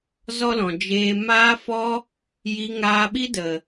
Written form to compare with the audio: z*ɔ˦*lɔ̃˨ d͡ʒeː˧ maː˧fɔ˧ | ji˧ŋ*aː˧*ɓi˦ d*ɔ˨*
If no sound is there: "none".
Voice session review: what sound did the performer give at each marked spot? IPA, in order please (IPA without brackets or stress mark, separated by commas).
ɔ˦, aː˧, ə˨